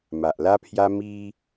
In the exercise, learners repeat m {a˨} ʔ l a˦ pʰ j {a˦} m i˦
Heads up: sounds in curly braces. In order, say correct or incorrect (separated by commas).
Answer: correct, correct